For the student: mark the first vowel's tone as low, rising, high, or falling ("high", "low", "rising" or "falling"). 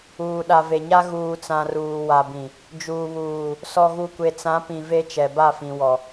low